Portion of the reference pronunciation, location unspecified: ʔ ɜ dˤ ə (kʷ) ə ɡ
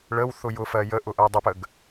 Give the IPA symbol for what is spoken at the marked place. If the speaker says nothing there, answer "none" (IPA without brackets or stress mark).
p